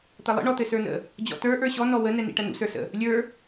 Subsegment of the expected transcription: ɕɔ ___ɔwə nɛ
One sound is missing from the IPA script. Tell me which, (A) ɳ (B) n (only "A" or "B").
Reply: B